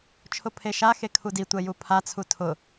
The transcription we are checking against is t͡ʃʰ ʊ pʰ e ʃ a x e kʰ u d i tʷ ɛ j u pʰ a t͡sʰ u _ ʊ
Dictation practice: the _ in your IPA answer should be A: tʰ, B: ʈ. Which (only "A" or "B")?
A